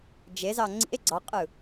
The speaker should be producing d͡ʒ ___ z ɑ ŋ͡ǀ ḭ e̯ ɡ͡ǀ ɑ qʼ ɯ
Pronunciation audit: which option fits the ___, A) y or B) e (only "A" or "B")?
B